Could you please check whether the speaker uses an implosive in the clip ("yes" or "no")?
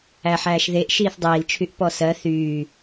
no